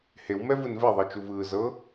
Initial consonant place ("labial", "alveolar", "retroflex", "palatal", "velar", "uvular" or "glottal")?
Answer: glottal